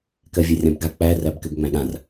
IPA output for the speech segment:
k ɜ vʲ ɛ rʲ ã b ɡ a k͡p æ r æ b k ɘ b ŋ͡m æ̃ ɠ ã r

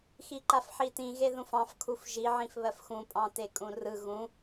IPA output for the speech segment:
x i ǃ a f ħ i t ĩ ɣ e ð ũ f ɑ̃ f kʰ u f ʒ i ʕ ĩ f β ɜ f x ũ pʼ ɑ̃ t e kʼ ũ r ɯ ɣ ũ

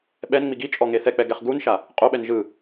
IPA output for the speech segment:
ɓ ɛ n ŋ͡m i ɡ i t͡ʃʼ ɔ ŋ e θ ɛ k͡p ɛ ɡ ɛ χ ɡ u n ʃ a | qʼ o ɓ ɛ n ʒ ɯ

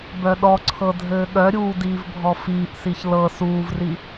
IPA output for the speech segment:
b œ ɗ ɔ ǀʰ ɤ dʱ ɘː ɠ œ ɾʲ uː d iː v bʱ ɔ f iː ʔ s i ç l ɤ s uː v r i

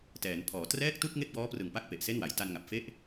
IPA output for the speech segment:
t ɛː˩˦ n pʰ ɔː˩˦ t r ɛː˥˩ k̚ t u˥˩ k̚ ŋ e˥˩ k̚ b ɔː˦˥ p r ɯ˨˩ ŋ p a˥˩ k̚ p e˨˩ ʔ s e˥˩ n w a˩˦ j t a˧ n ŋ a˨˩ p̚ f e˥˩ ʔ

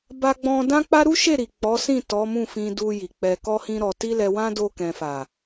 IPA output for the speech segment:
b a˧ ɡ͡b ɔ̃˧ d ã˦ k͡p a˦ ɾ u˦ ʃ e˦˨ ɾ i˨ k͡p ɔ˨˦ s ĩ˦˨ t ɔ˨˦ m ũ˦˨ f ĩ˧ d u˧ j i˨ k͡p ɛ˧ k ɔ˦ h ĩ˦ ɾ ɔ˧ t i˦ l ɛ˧ w ã˦ d o˧ k ɛ̃˨ f a˨

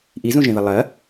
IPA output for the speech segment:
ʔ i z ũ ʒ ẽ ð ɐ lˠ ɐ

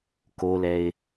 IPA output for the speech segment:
k o l ɛ ɪ̯

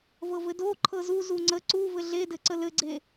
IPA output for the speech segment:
v ɤ v ɘ d o ǃʰ ɤ z u z u ŋ͡ǀ ə ǀ u v ɘ ɮ e d ɘ ǀ ə l ɘ ɡ͡ǀ e

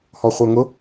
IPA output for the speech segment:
h ɔ χʷ ə˞ ŋ ʊ

